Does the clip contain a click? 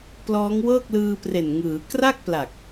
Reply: no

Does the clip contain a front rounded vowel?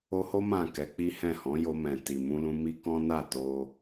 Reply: no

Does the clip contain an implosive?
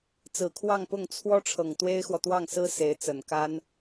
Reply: no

